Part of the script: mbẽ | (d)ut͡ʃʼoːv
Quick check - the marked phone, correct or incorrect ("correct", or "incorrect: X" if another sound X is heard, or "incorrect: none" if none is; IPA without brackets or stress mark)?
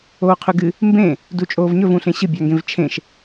correct